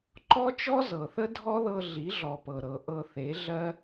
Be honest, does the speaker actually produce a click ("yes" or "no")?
yes